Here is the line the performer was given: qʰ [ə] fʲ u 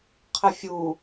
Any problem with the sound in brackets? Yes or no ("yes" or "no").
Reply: no